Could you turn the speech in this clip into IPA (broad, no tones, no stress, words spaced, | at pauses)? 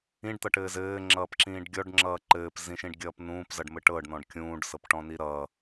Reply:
ĩɖt̪ʌʈɘː zɘːŋ͡ǁʌːpǁĩːɖ ɡʲɔɖŋ͡ǁʌː ǃɘːpzĩʃĩɖɡʲʌːp nũːpzʌɖmɘ ʈɤɖnɔ̃ɖ kʲũːɖsɤpʈɔ̃ni ɾʌ